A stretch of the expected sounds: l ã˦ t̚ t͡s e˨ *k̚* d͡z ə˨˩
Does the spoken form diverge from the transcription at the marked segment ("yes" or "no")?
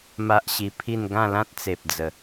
yes